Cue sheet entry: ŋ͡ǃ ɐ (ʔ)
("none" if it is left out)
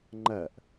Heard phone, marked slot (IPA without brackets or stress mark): ʔ